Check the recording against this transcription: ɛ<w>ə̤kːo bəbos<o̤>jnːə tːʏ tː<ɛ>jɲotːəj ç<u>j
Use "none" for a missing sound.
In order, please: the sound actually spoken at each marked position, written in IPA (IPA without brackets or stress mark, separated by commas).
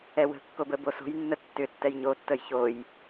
w, o̤, ɛ, o